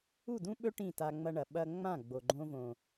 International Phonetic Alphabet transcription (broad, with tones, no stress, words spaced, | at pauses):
u˦˨dũ˦ɓɵ˦ ʈĩ˦˨ta˧ŋ͡mɐ˧ɳɐ˨ ɓɐ˧ ŋ͡mã˦˨ɡ͡bo˨ɡ͡ǃõ˧võ˨